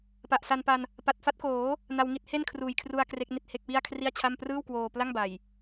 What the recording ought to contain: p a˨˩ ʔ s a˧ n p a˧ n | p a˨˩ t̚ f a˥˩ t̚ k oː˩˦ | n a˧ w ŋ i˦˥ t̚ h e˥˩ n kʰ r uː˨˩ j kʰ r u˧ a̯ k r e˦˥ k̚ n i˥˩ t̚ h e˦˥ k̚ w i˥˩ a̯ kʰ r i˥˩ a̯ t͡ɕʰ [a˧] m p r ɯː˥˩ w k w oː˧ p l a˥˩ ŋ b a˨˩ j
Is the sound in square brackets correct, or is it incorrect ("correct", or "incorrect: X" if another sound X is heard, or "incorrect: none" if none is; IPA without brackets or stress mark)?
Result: incorrect: a˥˩